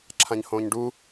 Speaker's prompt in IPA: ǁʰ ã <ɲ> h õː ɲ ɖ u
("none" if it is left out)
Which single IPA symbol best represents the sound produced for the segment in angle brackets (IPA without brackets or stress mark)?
ɲ